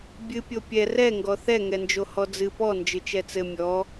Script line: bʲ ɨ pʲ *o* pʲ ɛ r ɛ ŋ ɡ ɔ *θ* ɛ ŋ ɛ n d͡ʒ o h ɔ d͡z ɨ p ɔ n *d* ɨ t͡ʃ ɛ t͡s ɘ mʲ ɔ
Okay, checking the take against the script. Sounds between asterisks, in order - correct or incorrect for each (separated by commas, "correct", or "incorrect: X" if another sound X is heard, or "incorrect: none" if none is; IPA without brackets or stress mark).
correct, correct, incorrect: d͡ʒ